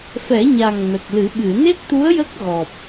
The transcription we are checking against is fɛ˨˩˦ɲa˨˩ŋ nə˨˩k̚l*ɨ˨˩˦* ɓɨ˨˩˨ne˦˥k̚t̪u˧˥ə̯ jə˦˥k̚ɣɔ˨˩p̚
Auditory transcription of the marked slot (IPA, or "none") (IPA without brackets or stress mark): ɨ˨˩˦